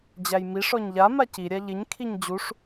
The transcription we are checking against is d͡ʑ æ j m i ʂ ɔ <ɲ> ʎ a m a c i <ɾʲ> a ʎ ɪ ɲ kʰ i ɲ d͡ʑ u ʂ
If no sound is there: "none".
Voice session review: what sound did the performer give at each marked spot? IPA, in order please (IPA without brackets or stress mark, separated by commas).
ɲ, ɾʲ